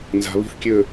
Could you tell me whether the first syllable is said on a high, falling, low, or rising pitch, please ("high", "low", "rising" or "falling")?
low